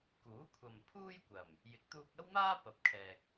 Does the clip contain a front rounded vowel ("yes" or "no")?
no